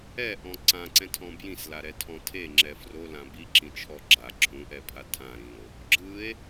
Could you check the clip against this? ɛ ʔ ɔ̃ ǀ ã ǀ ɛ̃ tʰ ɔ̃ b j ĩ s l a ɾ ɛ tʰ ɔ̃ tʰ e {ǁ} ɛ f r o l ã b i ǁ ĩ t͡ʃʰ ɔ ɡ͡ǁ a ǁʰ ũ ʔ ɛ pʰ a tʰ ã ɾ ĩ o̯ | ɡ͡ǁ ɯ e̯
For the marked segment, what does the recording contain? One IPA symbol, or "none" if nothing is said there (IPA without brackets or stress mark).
ŋ͡ǁ